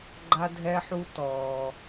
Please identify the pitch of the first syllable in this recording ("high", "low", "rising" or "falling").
high